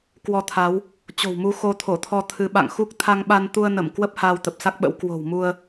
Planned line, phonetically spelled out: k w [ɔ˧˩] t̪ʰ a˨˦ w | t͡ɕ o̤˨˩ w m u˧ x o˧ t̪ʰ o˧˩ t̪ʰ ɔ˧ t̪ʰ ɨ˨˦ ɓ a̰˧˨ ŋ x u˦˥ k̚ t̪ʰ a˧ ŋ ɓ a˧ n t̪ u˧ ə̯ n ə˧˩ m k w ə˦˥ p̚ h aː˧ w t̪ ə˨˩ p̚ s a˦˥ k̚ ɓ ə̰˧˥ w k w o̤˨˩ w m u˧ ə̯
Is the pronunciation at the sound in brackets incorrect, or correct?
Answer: incorrect